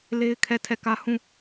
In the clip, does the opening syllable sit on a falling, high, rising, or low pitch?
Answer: high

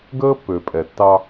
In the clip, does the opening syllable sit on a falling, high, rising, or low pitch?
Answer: high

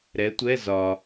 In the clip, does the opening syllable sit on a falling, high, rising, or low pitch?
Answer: rising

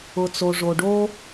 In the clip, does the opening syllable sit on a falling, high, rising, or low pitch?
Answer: low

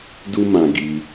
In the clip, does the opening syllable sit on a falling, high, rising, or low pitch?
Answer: high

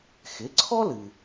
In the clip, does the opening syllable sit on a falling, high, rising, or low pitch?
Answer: rising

